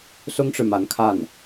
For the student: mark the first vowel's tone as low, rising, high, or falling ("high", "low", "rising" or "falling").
high